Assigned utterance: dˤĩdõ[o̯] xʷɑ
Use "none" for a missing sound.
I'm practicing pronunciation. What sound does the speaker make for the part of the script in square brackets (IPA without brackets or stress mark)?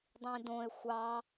e̯